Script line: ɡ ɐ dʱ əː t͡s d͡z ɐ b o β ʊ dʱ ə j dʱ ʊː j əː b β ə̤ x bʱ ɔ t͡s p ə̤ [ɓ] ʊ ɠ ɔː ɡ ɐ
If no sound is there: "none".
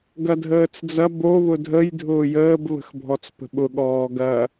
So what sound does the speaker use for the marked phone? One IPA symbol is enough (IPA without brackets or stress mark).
ɓ